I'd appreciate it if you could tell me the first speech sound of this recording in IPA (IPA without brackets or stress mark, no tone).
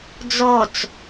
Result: d͡z